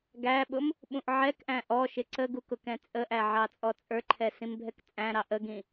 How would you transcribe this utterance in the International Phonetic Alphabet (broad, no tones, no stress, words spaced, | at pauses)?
ɡæɓʊm | ɓũʔʕɛkʔæ̃ ʔɔ ʃɪǀəɡu kʊkɛ̃t͡sʼəʔæ ʕɑt͡sʼɔt͡sʼə˞ǃʰɛ sĩmbʱɛkt͡sʼæ̃ɾɑ ʔəɡĩ